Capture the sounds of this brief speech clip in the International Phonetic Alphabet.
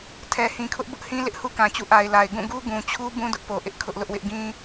tʰɛ˨ hĩ˨kʰʊ˦ʔbʊ˦ʔhĩ˦ lɪ˦ʔhu˦kã˨t͡ɕṵ˦˨ ʔa˨ɪ̯la˨ɪ̯ ɡũ˦˨ɡu˦ ɡũ˨t͡ɕʰu˦ bũ˦dʊ˦ʔpo˨ʔɪ˦ʔ kʰʊ˦ʔlʊ˦ʔwɪ˦ʔ ɡĩ˦

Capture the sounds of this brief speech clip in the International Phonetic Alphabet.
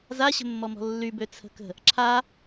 zaɕə̤mːɔmɔ̤ lːybø t͡sʰə̤kə̤ | ǁʰa

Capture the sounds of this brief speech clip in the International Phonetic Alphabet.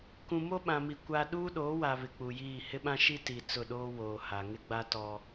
kũ˨mo˦ɓã˨mi˨ kʷa˦ ɗuː˦ɗoː˨˦wa˨ βɪ˨k͡pu˨jiː˦˨ hɪ˦ɓã˦ ʃi˦ti˨ t͡sʊ˦˨ɗoː˦ woː˨ha˨ ŋɪ˦ɡ͡ba˦ tɔ˦

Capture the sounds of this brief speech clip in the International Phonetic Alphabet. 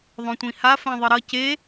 ðˤõtʷĩha fɛ̃ðˤɯɾʌ ce

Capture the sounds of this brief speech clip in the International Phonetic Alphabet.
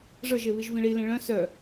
ʐə˞ʒeβiʒ vĩɭilẽ ɭœ̃ sœ

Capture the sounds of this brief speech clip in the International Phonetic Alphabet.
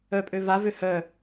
œpʼø vavø hœ

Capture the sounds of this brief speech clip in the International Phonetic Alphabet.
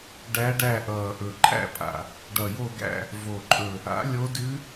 ɖæ˧˥ɖæ˦˨ʔʌː˨˩ʔɵ˨˩ ǃʼæ̰˦˨pʼa̰˨˩ | ɖʌ˨˩jo˦˨ɡæ̰˦˨ | vo˨˩ǃʼɵ˨˩ | a̰˩˥ lʲo˧˥dʉ˧˥

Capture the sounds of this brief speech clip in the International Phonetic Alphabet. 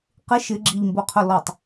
qɪ ʃɪ ɡ͡ǁiʎmbo qʰʊlɔtˤ

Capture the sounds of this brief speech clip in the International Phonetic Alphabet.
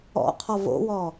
ɔ̰qʰɔ vo̰wɔ

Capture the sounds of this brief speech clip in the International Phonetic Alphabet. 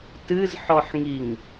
tɨzħɔħŋiŋ

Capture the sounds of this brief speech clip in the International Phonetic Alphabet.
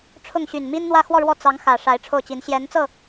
ʈ͡ʂʰʊ˥˩ŋɕy˨˩n mi˥nn̪wä˥˧ xwɔ˥˧ɻwɔ˥˩ t͡sɑ˧˥ŋ xä˨˩ ʂa˧˥ɪ̯ʈ͡ʂʰo˥˩ʊ̯t͡ɕi˧˥n ɕjɛ˧˥nt͡sɤ˥˩

